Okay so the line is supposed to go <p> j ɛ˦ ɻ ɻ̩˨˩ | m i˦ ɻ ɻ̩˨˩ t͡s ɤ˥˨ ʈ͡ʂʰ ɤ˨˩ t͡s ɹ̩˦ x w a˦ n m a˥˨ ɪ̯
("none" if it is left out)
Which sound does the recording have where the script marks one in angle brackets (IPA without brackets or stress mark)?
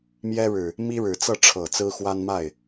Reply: m